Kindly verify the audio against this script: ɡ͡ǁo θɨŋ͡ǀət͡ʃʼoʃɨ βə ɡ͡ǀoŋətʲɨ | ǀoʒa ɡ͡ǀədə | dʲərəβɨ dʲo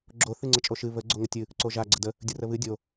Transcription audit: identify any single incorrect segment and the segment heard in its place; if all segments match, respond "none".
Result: none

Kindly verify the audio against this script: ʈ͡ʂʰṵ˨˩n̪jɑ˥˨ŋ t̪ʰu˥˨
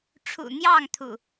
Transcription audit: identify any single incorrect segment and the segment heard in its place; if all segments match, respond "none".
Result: u˥˨ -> ṵ˨˩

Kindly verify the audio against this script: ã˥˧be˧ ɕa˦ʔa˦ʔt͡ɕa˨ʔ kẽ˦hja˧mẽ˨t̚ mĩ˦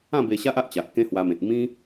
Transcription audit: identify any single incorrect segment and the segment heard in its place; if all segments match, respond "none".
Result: j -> w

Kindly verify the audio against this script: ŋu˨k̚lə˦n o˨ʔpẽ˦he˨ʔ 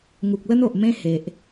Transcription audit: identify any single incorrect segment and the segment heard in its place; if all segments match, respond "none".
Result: p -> m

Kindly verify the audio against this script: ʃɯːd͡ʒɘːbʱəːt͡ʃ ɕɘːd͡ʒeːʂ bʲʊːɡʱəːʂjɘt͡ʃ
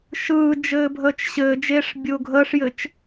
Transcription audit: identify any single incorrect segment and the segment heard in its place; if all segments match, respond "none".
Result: none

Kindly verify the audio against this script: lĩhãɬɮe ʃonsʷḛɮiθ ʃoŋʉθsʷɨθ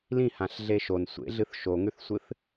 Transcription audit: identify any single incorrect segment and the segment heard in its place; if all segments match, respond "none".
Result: i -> ɨ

